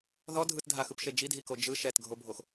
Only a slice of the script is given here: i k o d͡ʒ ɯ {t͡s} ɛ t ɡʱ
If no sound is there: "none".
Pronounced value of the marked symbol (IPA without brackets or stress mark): ʃ